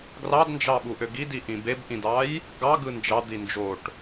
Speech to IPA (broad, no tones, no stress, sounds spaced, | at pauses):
ɡ r ɑ d n d͡ʒ ɑ ɓ u ʔ ø ɡ i d i ʔ ĩ b e b ʔ ĩ d ɑ j | ɡ ɑ ɡ ɯ n d͡ʒ ɑ d̪ i n d͡ʒ o ʈ